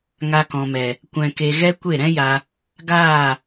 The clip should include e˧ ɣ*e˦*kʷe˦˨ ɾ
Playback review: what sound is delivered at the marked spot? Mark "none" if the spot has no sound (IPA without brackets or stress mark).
ɛ˦